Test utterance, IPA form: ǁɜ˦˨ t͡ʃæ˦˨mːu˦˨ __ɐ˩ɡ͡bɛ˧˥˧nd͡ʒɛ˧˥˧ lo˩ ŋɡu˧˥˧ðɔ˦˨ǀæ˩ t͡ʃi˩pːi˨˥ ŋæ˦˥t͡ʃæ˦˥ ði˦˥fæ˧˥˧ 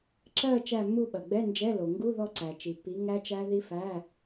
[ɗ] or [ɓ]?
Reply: ɓ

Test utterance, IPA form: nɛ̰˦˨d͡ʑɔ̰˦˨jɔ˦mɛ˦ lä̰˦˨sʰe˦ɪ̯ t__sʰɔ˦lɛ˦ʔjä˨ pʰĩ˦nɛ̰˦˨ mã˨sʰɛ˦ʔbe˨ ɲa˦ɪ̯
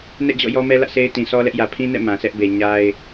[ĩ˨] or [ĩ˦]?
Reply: ĩ˨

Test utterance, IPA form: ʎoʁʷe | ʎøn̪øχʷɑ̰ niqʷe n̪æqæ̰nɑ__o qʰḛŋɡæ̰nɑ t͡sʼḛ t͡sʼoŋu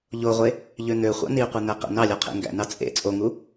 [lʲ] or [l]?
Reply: lʲ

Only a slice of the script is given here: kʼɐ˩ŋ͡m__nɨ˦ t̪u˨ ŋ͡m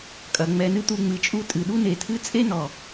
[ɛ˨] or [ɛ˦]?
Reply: ɛ˨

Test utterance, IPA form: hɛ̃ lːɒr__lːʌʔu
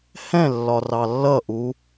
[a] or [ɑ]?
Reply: ɑ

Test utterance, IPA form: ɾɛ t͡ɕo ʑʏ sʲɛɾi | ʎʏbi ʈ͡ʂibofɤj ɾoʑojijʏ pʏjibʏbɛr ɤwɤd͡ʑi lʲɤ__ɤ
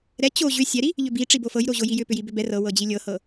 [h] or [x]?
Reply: h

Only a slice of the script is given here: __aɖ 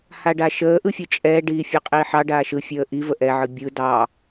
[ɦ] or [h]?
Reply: h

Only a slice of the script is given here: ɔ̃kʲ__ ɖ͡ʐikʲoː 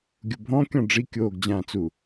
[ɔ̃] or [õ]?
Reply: ɔ̃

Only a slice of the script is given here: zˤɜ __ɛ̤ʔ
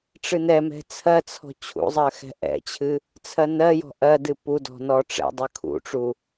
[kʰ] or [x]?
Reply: x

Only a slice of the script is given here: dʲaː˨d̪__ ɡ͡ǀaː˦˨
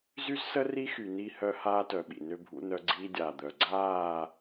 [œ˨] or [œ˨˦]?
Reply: œ˨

